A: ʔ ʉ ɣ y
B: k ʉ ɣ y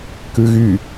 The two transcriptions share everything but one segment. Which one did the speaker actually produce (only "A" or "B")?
B